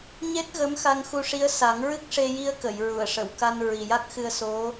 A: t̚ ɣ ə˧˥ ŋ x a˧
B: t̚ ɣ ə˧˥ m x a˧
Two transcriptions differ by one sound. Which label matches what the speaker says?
B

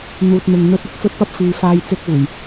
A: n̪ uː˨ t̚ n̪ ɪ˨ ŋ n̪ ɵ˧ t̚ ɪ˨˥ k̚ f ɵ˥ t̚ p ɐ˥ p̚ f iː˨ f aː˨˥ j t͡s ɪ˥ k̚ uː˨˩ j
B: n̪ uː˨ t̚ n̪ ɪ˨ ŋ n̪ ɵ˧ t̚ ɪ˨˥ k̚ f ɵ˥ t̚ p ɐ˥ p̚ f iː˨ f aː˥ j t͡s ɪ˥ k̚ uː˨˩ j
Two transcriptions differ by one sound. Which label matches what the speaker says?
B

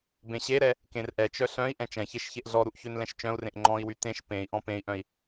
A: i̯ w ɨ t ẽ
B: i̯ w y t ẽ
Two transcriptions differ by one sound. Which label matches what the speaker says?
B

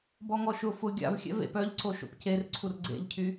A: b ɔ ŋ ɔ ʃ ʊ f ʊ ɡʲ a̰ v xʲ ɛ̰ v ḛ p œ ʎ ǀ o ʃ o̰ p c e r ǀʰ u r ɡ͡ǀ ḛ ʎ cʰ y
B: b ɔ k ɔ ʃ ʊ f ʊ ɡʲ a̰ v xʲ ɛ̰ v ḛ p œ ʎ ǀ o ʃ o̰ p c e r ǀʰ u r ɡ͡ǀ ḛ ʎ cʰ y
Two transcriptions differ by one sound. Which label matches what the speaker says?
A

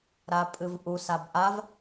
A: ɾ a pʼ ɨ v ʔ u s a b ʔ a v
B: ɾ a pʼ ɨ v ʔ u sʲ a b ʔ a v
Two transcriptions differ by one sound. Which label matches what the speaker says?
A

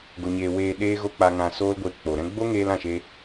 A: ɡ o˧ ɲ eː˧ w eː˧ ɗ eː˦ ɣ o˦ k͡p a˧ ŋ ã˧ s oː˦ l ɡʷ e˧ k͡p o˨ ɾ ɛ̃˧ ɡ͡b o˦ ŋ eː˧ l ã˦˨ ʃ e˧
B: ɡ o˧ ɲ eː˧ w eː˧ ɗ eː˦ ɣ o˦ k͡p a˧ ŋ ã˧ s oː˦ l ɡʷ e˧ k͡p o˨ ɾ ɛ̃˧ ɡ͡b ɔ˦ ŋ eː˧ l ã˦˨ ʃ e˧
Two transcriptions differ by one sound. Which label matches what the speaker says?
A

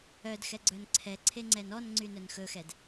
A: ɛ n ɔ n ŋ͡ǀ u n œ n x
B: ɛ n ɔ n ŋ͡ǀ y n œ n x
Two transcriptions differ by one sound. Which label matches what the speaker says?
B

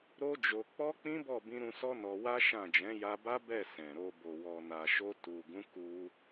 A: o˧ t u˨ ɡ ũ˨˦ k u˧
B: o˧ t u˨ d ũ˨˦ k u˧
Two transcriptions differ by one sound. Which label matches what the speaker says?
A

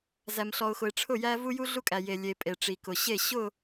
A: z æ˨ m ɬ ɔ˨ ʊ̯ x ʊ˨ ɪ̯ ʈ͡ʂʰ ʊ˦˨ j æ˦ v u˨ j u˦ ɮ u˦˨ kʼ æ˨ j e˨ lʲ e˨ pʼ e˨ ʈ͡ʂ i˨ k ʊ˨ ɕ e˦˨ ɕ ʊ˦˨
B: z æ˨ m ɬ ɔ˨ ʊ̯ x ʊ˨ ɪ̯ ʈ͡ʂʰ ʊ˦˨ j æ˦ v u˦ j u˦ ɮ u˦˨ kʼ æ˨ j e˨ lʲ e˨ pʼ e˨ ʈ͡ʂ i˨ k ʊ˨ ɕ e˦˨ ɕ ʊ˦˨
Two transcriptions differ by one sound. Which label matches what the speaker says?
B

